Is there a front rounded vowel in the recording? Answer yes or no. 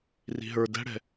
no